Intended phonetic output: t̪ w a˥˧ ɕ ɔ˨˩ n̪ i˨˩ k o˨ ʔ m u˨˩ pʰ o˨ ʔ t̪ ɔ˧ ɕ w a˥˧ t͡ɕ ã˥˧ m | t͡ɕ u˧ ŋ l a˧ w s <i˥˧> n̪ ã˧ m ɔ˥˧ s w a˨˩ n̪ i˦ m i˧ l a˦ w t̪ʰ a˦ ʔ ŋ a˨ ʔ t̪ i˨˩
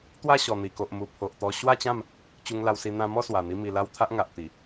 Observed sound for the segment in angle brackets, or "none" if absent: i˧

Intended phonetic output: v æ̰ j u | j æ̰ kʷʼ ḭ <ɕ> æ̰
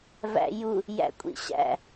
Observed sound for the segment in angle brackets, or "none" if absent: ɕ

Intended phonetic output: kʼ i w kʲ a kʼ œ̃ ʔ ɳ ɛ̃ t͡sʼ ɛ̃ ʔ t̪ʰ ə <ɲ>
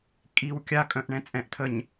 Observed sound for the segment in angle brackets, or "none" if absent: ɲ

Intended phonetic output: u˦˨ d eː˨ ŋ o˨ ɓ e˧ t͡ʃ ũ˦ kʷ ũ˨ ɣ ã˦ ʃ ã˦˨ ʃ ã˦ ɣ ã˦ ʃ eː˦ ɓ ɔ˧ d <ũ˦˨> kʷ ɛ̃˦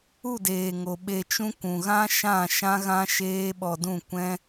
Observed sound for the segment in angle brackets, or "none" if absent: ũ˦˨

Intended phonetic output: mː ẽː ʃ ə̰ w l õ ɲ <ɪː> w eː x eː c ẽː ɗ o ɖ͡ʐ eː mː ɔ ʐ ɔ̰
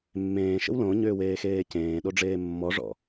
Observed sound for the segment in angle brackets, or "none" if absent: ʏː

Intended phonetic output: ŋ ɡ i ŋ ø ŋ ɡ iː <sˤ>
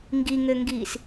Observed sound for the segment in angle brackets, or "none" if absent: s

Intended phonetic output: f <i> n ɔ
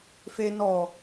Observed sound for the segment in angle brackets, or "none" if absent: e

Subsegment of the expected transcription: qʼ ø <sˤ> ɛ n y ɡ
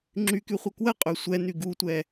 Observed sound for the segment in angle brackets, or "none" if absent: sʷ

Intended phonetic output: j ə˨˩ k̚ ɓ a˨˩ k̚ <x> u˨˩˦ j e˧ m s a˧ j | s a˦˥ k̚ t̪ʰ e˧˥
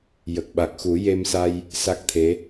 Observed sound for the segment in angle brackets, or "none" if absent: x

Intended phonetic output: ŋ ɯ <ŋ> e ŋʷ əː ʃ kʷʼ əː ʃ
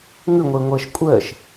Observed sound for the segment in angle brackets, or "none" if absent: ŋʷ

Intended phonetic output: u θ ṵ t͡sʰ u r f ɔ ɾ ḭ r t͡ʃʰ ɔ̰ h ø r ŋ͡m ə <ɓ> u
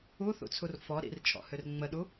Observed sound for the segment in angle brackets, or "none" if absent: ɗ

